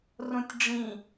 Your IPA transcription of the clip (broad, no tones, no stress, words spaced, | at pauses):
rõtʲɖ͡ʐĩ